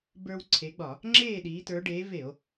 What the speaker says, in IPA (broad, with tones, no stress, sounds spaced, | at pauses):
b ə˞˦ w ǀʰ e˨˦ ɡ͡b ɒ˧˩˧ | ŋ͡ǁ eː˥˨ ɗ iː˨˦ t ə˞˨˦ ɖ eː˨˦ v e˧˩˧ o̯